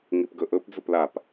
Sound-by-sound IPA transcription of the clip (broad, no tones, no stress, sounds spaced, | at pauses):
ŋ i p ɡ ɵ ʔ ɵ p d͡z ɵ p l a p